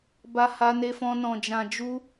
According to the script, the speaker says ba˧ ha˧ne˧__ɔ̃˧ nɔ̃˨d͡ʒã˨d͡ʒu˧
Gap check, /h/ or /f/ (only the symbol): f